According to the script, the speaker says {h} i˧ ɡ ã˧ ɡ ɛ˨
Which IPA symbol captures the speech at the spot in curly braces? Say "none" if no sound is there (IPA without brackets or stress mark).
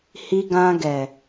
h